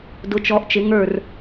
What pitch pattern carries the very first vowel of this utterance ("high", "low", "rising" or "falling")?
rising